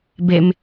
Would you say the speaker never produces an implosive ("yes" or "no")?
yes